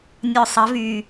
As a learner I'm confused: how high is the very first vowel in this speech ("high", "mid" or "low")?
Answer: mid